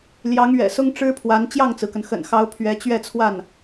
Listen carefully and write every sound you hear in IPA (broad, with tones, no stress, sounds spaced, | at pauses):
l j ɑ˧˥ ŋ ɥ ɛ̰˨˩ s ʊ˥ ŋ ʈ͡ʂ ɻ̩˥ pʰ w a˧˥ n t͡ɕ j ɑ˥˩ ŋ t͡s ɹ̩˩ k ə˩ n x ə̰˨˩ n x ɑ˧˥ ʊ̯ pʰ ɥ ɛ˧˥ t͡ɕ ɥ ɛ˥˧ t͡sʰ w a˥˩ n